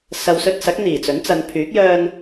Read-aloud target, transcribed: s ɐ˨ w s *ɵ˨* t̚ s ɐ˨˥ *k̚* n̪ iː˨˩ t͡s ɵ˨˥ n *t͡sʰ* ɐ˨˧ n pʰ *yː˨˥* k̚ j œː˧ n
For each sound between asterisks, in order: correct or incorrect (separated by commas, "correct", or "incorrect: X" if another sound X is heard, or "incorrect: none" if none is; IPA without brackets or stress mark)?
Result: incorrect: ɵ˧, correct, incorrect: t͡s, correct